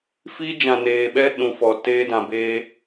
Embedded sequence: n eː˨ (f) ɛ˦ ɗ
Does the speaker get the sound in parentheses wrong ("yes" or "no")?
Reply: yes